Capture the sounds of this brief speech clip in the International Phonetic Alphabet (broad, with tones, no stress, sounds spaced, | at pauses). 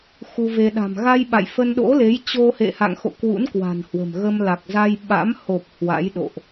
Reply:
x u˧ v e˧ ɗ a̤˨˩ m ɣ a˧ j ɓ a̰˧˨ j f ə˧ n ɗ o̰˧˥ l e˨˦ j t͡ɕ o˧ h ḛ˧˨ h a̰˧˨ ŋ x o̰˧˨ k w ṵ˧˥ n k w a̤˨˩ n h w ə̤˨˩ m ɣ ə˧ m l a˨˩ k̚ z a˧ j ɓ a̰˧˥ m h o˨˩ p̚ h w a̰˧˥ j ɗ o̰˧˨ ʔ